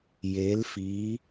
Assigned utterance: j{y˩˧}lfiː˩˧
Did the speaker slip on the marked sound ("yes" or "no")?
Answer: yes